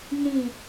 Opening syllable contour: low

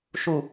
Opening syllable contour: low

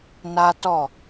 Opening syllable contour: high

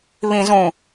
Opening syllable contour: low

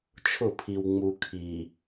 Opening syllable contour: falling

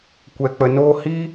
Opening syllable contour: low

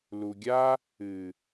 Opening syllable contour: low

